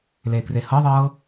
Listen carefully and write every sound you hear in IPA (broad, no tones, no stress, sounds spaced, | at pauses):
l eː k r e h ɤ ðˤ ɤː